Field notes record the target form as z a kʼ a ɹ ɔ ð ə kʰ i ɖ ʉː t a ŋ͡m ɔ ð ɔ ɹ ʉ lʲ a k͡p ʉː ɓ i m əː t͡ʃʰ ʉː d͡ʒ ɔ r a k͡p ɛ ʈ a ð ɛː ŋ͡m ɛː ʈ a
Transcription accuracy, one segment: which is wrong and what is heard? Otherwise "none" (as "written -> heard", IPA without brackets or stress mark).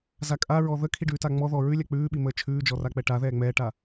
none